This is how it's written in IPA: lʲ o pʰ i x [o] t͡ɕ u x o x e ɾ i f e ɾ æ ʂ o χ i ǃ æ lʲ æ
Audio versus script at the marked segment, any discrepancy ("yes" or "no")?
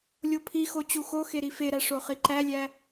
no